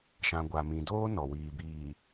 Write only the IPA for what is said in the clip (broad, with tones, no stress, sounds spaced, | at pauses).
ʃ ã˨ ɡʷ a˨ m ĩ˨ d oː˦ n ɔ˨ w iː˨ b iː˨